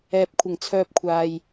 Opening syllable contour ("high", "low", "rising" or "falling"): low